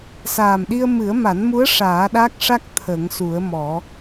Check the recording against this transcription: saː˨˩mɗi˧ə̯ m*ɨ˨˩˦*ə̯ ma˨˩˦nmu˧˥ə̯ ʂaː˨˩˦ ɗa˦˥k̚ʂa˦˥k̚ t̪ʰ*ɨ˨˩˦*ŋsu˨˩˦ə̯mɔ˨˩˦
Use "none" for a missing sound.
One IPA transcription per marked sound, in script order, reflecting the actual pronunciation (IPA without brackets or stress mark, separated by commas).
ɨ˨˩˦, ə˨˩˦